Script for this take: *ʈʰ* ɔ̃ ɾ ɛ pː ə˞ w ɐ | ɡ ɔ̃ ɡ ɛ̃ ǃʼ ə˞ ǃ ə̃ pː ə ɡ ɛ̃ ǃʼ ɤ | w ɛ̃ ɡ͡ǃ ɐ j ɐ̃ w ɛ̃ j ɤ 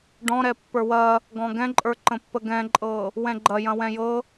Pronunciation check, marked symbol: incorrect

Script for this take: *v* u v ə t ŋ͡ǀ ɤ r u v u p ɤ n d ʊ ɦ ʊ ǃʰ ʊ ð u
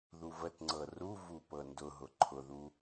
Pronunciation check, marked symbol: incorrect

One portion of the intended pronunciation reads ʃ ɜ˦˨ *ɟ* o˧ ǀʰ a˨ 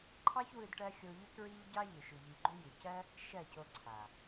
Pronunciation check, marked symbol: incorrect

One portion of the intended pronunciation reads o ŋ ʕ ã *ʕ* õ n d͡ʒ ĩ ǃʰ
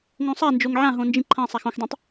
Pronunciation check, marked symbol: incorrect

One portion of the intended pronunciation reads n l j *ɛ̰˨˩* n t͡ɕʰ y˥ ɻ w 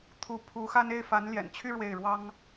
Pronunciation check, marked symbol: correct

